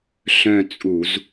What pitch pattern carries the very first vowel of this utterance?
falling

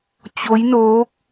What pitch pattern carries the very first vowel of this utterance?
rising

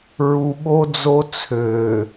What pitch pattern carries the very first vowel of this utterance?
low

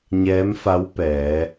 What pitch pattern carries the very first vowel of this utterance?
rising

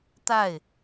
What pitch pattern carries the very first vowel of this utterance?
falling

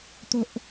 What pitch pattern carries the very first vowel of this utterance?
high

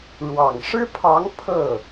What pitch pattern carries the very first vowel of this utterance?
low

